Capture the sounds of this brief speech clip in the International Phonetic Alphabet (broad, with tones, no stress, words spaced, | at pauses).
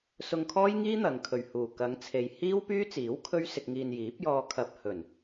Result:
sʊ˧ŋkʰɔː˥jŋiː˥ n̪ɐ˨˧ŋkʰɵ˨ɥhuː˨˩ kɐ˨˧ŋt͡sʰe˨j hiː˥wpyː˥t͡siː˨˥w kʰɵ˥ɥsɪ˧k̚ŋiː˧n jiː˨˥p̚jɔː˧ kʰɐ˧p̚ hɵ˨˩n